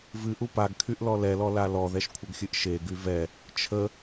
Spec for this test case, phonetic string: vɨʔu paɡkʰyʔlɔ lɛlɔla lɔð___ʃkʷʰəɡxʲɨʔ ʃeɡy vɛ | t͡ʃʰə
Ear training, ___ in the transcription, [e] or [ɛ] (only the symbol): ɛ